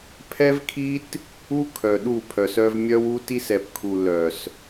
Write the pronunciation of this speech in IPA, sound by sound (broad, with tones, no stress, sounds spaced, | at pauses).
pʰ ɛ˦ v kʰ i˦ t | u˦ kʰ œ˨ ɗ u˦˨ pʰ œ˨ s œ˦ v mʲ œ˦ w u˦ t i˦ s ɛ˨ p kʰ u˨ l œ˨ s